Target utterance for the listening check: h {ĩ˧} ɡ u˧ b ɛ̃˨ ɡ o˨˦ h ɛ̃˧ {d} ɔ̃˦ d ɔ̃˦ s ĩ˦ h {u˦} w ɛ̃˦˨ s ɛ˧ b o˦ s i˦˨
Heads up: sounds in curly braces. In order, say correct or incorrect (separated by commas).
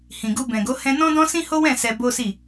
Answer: incorrect, incorrect, incorrect